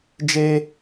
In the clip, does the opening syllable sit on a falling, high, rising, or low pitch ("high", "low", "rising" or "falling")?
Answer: high